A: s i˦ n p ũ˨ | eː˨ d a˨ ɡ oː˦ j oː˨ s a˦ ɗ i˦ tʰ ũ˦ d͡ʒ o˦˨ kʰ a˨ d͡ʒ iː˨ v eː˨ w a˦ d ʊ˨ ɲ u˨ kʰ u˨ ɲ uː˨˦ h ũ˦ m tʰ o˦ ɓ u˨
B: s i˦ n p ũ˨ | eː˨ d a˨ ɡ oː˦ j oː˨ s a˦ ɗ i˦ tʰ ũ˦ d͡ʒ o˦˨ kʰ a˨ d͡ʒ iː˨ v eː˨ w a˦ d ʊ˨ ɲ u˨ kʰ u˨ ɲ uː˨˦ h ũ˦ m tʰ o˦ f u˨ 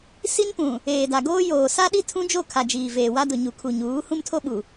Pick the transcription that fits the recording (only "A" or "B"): A